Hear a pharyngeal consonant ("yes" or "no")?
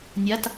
no